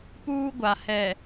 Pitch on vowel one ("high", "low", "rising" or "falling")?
high